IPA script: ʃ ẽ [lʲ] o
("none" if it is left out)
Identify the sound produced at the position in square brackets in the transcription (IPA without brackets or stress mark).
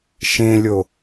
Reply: lʲ